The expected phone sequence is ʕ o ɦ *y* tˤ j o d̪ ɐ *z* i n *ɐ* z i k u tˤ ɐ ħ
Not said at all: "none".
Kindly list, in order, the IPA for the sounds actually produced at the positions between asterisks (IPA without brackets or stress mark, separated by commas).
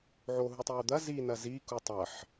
u, z, ɐ